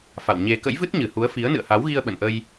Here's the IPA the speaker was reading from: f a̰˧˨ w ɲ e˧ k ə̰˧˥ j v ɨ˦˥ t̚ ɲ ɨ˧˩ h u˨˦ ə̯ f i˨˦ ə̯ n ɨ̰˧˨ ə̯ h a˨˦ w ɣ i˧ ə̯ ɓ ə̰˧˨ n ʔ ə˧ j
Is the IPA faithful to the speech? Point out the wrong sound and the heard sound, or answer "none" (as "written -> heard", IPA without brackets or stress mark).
none